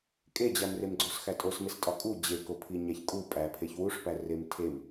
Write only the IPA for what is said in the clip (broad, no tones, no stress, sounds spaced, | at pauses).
kʼ e d͡ʑ æ m r e m ɡ͡ǀ o s x æ tʼ o s m e s tʼ ɒ kʼ u d͡ʑ e k o pʰ i ɲ æ ç kʼ u pʼ æ pʰ e ç w u ʂ p æ r e m tʰ e m